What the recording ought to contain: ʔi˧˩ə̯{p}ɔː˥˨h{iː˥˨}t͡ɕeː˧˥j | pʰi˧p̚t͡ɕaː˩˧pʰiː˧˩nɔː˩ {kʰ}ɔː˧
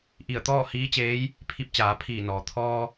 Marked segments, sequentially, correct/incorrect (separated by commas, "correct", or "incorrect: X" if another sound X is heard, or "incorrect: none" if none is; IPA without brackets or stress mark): incorrect: t̪, incorrect: iː˧˥, incorrect: t̪ʰ